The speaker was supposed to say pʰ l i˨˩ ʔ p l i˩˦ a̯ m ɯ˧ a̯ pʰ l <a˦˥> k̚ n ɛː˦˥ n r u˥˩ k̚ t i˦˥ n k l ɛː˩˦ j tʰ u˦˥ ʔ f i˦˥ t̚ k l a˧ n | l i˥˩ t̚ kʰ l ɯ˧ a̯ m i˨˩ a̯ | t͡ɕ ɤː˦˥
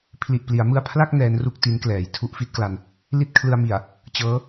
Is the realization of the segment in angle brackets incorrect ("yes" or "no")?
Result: yes